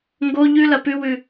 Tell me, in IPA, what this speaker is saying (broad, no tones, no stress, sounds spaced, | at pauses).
ŋ ɡ o ʎ ʉ l ɐ p ʉ w ʉ